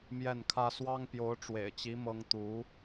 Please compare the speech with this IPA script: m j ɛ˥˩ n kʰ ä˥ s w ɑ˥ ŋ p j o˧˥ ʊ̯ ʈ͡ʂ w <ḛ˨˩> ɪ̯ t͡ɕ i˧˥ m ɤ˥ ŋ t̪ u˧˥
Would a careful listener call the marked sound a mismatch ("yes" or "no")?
no